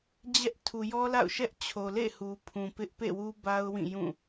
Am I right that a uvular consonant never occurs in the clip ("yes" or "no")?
yes